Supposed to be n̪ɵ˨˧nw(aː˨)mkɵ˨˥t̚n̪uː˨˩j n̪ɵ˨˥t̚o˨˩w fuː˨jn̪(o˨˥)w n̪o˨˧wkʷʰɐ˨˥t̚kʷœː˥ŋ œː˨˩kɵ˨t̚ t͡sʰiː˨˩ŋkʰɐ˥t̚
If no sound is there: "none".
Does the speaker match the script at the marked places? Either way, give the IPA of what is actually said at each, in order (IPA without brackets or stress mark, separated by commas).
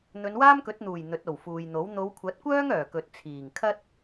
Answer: aː˥, o˨˥